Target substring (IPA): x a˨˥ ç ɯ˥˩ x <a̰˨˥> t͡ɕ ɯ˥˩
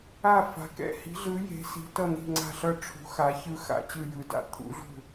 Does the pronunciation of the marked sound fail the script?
yes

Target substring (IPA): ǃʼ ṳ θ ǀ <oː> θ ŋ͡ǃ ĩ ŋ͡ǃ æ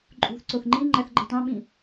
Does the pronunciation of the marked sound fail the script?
yes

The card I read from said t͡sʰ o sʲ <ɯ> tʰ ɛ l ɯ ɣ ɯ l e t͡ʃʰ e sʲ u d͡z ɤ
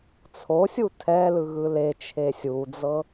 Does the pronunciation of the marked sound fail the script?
yes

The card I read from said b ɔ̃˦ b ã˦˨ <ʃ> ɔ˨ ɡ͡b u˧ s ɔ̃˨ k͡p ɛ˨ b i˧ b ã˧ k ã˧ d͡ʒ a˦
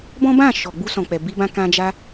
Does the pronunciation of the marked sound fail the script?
no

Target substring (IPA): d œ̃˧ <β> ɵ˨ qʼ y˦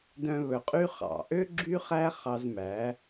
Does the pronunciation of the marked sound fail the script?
no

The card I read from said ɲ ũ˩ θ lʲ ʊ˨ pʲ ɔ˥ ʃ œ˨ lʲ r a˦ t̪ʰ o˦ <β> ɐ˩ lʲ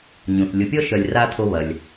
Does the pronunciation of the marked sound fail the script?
no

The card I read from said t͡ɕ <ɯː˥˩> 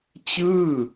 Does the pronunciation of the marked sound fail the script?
no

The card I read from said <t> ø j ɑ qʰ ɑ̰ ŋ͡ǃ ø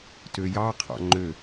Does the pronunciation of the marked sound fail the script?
no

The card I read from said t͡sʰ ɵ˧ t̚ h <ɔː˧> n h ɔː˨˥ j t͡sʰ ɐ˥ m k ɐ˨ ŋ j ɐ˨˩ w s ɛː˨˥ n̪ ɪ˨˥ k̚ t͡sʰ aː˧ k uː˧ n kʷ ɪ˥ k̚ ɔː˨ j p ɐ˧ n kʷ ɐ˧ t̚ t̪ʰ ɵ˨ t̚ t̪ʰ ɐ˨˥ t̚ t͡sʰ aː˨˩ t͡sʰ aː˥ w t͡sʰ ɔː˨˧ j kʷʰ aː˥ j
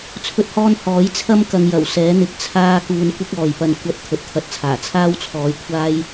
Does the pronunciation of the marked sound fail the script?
no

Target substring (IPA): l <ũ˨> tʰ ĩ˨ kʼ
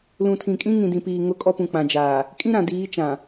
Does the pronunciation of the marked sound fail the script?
no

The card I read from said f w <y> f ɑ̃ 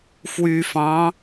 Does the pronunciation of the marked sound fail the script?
no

